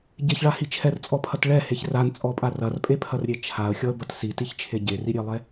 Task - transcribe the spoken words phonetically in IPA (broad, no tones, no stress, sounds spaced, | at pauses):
ɟ e ç ɭ a h i t͡ʃʰ ɛ r t͡sʼ ɔ pʰ ɐ t ɭ ɛ h e ç r a n t͡sʼ ɔ pʼ a r ɐ r pʼ e pʰ ɐ r ɾʲ e t͡ʃʰ a ə̯ xʲ ɔ ə̯ b ɐ t s i t i ç t͡ʃʰ e ɟ e r i ɾʲ e lˠ ɛ